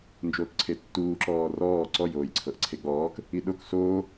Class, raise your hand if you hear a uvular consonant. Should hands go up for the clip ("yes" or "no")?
no